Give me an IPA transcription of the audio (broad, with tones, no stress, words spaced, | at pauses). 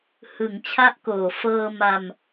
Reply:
hɯ˩˦ŋt͡ɕʰa˦˥ʔkoː˨˩ fɤː˧ ma˧m